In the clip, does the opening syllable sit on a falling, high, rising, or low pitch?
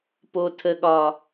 low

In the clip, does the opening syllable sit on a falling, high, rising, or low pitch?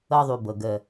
high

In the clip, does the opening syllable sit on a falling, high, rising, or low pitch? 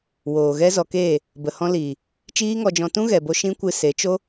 low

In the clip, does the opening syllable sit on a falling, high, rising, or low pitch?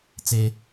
high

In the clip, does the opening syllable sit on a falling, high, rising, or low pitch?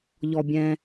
low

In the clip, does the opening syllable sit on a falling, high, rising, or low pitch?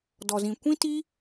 low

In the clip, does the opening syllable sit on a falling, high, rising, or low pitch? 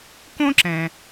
high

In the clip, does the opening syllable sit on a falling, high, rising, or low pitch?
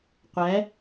rising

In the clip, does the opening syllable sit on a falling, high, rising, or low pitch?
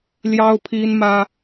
high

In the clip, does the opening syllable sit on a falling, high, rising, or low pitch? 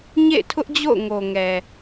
falling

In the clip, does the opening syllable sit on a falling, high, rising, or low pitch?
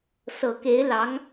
low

